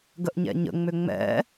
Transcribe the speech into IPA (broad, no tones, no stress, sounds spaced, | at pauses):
ɡ ə ʔ ɲ ɛ̰ ɲ ə̰ ŋ͡m ʏ ŋ͡m ɛ̰